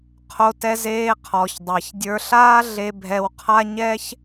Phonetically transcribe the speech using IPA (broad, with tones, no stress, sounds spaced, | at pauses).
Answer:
qʰ o˧ t ɛ˧ z eː˧ qʰ ɔ˨ ç dˤ a˨ ç dʲ ə˞˧ ɬ aː˦ ɮ e˧ bʱ ɛ˧ w qʰ a˦ ɲ ɛ˦ ç